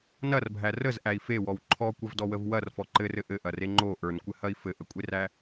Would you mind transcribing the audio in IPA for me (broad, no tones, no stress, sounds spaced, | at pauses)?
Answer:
n ɐ r bʱ æ r ə z ʔ æ i̯ f e w ɔ w ǃʰ ɔ kʷ ɐ v d ɔ w ə v w ɐ r f ɔ ǃ ɘ r ɘ ʔ ɘ ʔ ɐ r e ŋ͡ǃ o ʔ ə˞ n kʷ ɘ h ɐ i̯ f ɘ ʔ ə kʷʼ e r æ